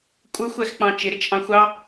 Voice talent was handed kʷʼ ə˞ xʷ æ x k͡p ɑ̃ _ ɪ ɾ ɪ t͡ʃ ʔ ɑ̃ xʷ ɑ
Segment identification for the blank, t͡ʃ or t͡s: t͡ʃ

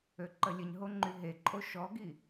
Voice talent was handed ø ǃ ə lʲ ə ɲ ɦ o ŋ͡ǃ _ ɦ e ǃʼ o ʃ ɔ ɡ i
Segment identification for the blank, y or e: y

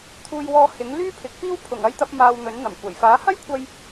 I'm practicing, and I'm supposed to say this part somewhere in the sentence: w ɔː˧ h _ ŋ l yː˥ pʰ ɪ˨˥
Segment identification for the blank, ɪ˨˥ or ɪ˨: ɪ˨˥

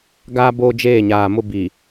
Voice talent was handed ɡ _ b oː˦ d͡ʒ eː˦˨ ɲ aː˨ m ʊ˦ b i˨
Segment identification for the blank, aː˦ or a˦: aː˦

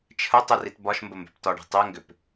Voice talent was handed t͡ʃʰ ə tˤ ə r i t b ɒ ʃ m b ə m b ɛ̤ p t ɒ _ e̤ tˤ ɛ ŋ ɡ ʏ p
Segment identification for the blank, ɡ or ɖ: ɖ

